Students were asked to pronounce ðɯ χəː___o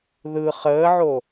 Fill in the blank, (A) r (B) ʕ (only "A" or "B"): B